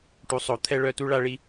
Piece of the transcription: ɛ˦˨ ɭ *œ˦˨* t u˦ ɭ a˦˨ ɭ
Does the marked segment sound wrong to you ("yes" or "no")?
no